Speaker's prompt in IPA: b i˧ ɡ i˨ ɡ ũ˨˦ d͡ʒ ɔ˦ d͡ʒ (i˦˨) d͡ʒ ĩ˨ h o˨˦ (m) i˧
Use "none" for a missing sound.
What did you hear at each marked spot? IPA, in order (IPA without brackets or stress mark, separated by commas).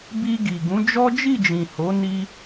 i˦˨, n